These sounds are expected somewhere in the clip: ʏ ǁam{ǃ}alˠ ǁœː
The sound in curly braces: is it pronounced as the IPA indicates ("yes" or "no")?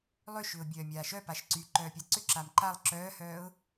yes